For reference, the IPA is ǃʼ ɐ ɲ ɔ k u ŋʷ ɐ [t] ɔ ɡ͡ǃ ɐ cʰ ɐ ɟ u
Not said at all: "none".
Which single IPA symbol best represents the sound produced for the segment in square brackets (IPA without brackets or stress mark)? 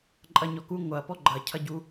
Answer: p